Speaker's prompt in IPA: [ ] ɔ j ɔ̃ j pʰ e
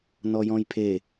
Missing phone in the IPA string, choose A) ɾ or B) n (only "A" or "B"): B